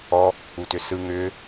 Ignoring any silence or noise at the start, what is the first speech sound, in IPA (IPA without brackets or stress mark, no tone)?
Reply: ɔ